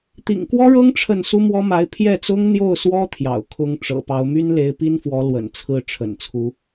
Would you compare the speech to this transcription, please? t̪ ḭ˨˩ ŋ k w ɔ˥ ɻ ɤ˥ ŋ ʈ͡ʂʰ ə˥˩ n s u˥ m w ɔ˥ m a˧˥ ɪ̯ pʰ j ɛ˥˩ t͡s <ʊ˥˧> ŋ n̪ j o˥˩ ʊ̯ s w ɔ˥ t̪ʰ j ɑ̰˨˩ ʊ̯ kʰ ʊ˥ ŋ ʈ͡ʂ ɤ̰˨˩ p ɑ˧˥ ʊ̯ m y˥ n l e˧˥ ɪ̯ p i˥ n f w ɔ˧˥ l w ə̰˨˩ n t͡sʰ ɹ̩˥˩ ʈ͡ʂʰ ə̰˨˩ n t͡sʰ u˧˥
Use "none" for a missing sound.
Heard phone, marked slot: ʊ˥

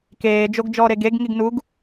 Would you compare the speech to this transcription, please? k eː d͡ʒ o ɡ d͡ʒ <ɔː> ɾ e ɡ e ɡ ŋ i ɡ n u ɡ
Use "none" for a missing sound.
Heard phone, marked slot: ɔː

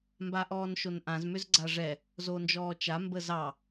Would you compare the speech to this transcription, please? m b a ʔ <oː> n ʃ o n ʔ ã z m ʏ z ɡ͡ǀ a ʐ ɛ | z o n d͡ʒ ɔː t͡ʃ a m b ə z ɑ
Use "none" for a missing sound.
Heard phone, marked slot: ɔː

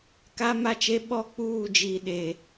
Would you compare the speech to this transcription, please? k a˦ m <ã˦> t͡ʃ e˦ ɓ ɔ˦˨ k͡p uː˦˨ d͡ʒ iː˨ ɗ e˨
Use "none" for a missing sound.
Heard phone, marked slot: a˦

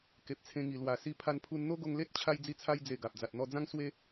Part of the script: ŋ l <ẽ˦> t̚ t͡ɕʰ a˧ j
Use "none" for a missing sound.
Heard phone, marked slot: e˦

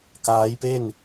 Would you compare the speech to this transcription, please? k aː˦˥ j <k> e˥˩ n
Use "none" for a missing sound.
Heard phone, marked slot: p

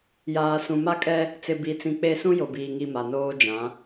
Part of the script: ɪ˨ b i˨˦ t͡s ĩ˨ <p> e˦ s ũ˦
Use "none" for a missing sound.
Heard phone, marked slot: k͡p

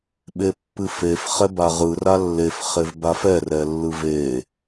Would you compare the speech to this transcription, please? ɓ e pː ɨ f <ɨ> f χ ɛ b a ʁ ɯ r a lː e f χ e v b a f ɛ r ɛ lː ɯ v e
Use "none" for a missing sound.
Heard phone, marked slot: e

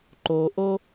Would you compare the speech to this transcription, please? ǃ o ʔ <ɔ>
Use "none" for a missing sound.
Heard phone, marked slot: o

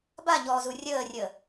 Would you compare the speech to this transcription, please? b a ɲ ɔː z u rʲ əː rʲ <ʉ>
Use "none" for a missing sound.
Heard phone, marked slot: ə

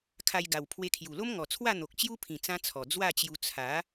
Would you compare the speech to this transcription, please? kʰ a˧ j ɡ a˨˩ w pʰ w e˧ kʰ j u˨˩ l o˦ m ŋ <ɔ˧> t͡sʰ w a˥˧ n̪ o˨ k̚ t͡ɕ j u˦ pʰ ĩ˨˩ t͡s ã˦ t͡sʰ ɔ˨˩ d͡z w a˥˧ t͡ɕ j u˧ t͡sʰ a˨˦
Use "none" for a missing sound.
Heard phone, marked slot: ɔ˨˩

